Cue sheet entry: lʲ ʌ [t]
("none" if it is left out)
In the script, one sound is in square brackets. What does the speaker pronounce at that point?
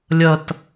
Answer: t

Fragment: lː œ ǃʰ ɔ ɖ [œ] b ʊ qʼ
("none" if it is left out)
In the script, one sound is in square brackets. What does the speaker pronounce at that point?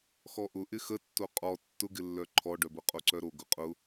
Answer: œ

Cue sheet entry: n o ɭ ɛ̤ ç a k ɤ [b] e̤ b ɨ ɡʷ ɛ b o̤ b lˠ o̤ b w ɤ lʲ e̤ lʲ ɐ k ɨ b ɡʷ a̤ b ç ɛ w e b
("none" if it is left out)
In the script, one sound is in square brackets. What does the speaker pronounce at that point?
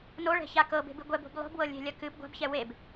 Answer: b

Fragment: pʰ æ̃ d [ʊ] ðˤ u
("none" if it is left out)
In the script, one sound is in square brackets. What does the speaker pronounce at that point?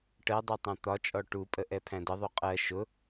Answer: ə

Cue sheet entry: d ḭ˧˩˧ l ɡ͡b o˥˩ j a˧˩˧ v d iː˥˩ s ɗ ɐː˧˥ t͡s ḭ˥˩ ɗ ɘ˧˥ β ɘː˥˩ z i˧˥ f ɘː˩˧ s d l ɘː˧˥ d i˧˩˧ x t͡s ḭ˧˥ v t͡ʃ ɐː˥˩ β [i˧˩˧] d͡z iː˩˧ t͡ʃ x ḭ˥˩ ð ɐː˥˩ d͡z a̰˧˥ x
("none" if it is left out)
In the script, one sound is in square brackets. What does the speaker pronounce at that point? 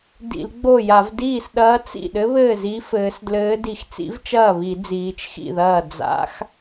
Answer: i˧˩˧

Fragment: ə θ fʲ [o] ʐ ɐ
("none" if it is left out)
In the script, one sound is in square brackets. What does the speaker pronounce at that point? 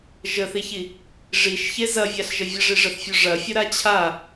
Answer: o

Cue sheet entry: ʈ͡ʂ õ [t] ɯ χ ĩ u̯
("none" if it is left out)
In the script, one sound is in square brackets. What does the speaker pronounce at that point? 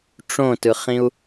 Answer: t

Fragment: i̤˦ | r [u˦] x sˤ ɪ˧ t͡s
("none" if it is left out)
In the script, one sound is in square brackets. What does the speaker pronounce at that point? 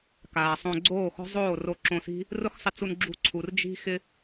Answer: ʊ˦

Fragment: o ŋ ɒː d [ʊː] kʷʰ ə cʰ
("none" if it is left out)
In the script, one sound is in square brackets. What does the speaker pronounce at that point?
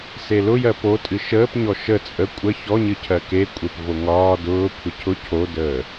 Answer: ʊː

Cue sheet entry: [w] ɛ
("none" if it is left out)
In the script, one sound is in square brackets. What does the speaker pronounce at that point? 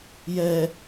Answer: j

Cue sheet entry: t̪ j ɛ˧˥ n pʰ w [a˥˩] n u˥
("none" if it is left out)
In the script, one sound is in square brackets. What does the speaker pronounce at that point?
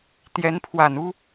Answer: a˨˩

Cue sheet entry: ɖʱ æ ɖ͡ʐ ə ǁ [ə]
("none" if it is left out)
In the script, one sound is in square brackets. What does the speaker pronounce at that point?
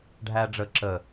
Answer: ə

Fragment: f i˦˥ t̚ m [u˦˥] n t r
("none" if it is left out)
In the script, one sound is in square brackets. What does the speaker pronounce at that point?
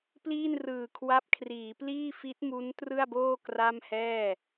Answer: u˦˥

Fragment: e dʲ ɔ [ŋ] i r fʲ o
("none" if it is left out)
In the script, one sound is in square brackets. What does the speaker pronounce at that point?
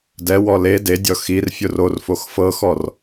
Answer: x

